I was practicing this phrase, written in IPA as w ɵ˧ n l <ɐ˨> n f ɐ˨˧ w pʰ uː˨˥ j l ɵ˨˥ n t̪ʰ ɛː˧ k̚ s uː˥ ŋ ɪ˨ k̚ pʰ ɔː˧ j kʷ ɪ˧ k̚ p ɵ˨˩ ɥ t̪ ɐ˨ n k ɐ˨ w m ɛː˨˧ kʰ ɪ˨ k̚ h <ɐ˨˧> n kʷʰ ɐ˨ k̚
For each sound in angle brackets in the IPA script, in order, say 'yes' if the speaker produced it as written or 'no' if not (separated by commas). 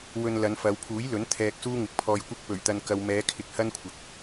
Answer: no, no